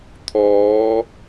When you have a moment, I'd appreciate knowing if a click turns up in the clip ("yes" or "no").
no